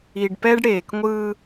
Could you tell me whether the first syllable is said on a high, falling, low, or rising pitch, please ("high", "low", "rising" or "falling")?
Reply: low